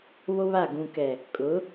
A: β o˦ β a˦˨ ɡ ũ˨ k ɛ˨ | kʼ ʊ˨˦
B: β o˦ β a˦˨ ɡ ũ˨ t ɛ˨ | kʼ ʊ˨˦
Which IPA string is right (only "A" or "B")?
A